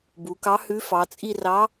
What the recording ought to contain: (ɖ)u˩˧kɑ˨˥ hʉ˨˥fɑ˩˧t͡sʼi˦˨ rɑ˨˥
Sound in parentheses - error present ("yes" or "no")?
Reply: yes